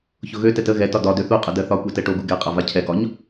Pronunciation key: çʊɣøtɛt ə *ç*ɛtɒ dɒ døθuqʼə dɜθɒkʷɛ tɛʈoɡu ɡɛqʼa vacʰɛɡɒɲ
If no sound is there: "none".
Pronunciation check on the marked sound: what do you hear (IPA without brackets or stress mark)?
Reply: ɣ